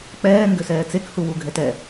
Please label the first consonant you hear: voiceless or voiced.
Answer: voiceless